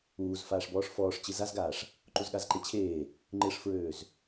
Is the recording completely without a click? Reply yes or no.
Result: no